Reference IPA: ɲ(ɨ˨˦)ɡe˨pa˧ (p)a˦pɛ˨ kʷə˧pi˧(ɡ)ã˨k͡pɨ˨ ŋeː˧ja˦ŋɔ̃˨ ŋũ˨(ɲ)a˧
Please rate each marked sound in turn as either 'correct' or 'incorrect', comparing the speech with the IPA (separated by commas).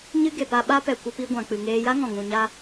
incorrect, incorrect, incorrect, correct